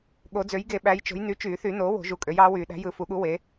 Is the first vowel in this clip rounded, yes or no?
yes